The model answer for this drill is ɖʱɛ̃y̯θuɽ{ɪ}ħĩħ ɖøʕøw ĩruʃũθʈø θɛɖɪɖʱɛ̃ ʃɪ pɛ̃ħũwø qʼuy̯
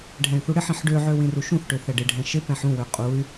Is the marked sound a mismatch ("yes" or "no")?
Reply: no